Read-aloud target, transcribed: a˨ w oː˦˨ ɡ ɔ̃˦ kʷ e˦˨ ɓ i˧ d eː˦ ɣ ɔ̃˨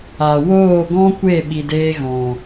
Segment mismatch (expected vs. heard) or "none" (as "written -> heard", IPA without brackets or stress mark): none